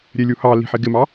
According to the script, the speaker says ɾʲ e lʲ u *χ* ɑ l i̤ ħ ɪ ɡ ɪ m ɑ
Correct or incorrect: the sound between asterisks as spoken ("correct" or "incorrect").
incorrect